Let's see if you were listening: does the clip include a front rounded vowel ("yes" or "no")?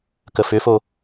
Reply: yes